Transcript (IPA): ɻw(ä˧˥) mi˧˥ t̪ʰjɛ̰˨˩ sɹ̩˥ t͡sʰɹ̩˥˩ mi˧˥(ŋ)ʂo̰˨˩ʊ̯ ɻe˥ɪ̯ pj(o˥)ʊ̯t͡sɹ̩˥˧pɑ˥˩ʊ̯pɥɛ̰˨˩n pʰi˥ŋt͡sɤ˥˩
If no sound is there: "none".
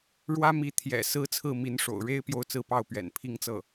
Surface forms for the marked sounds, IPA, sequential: ä˥, n, o˥˧

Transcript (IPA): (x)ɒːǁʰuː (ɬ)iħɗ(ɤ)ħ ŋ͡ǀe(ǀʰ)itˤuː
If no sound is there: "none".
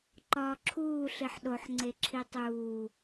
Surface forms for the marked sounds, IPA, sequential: ǃ, ɬ, o, ǁʰ

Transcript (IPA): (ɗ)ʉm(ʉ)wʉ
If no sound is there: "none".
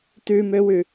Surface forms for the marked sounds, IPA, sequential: t, ø

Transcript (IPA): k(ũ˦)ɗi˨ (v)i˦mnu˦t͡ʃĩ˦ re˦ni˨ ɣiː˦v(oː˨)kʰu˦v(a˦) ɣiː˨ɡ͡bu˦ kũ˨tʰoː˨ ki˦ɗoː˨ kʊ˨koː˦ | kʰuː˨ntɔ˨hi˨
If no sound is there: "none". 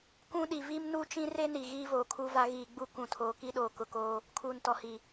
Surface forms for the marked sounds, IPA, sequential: ũ˦, v, oː˨, a˦

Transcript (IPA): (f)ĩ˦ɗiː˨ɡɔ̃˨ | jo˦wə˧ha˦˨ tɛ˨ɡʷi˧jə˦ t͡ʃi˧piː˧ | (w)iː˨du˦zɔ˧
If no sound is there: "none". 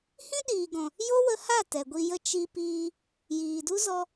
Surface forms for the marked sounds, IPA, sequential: h, j

